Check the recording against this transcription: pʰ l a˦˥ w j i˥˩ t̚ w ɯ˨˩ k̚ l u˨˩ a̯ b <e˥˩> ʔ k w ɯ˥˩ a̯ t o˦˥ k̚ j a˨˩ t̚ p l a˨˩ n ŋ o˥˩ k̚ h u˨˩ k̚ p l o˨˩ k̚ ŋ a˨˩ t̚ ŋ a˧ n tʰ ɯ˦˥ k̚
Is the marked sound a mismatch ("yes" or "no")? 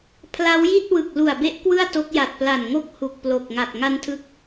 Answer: yes